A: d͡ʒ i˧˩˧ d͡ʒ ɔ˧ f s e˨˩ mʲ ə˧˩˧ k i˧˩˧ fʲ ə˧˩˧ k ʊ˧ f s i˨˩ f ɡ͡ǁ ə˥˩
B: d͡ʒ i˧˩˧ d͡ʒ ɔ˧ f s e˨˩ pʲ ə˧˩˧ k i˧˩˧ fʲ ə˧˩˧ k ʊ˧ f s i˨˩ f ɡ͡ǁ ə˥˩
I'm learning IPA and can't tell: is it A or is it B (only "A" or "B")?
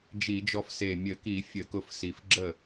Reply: A